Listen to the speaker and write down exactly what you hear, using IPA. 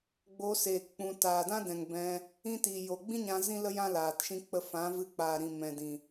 ɡ͡b o˧ s eː˨ k k͡p ũ˨ t aː˨ d ã˦ d ɛ̃˨ ŋ b ɛ̃˧ | ĩ˦ t iː˨ j o˨ ɡ͡b ĩ˦ ɲ ã˧ z ĩ˦ l ə˦ j ã˦ l aː˨ t ʃ ĩ˦ k͡p ə˧ f ã˨˦ v ɨ˧ k͡p aː˨ ɾ ĩ˨ m ɛ̃˨ d ĩ˨

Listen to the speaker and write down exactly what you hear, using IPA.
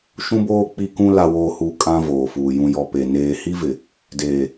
ʃ ũ˦ b oː˦ k͡p i˦ k ũ˦ l a˨ w oː˨ h uː˨ kʼ ã˦ v oː˨ f uː˨ j ũ˨ j ɔ˨ p e˨ n eː˨ h i˦ v ɪ˨ | d eː˨

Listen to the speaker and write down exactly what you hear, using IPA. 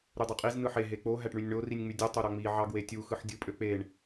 ɾ y dˤ u qʼ i z n ɯ ħ e ɦ e k͡p o ɦ æ ʈ ɳ y nʲ ɳ o r i nʲ ŋ͡m y dʲ u tˤ o ɾ ɑ ŋ͡m i ʕ ɑ ɡ w e tʲ u x ɯ ħ dʲ ɯ pʼ ø k͡p e ɳ

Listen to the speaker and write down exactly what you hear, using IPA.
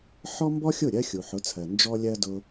ħ ɔ˥ m b ɔ˥ xʲ ʊ˥˩ ɾʲ ɜ˥ xʲ u˩ ħ ʊ˩˥ t͡sʰ ɜ˩ n d͡ʒ ɔ˧ lʲ ɜ˧ d ʊ˥

